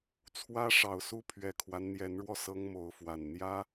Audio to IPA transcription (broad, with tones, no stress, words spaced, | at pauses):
t͡sʰwä˦ʂɑ˨˩ʊ̯su˦ pʰɥɛ˨˩kʰwa˦n n̪jɛ˨˦nɻwɔ˧ sɤ˦ŋmo˨˦ʊ̯fwa˨˩n n̪jä˦